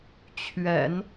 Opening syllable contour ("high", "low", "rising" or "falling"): low